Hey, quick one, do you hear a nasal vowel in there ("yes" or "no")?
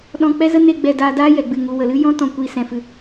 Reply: yes